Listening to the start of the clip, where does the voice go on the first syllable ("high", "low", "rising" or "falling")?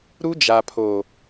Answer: high